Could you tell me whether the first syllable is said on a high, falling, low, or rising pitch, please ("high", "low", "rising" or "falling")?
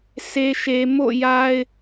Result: low